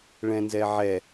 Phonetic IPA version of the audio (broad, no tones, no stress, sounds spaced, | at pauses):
ɭ ɛ̃ n z ɛ ʕ ɛ